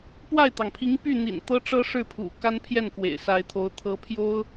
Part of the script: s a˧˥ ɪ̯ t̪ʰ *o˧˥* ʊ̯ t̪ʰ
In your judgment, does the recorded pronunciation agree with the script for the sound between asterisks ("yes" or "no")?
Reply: yes